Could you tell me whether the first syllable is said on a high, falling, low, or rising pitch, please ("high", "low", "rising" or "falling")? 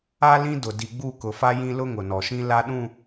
high